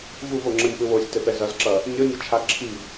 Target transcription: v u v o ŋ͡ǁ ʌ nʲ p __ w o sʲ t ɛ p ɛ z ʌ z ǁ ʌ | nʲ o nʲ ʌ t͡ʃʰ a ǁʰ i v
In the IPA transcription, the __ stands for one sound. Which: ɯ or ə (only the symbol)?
ɯ